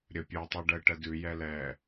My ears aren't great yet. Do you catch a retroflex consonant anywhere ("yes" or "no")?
yes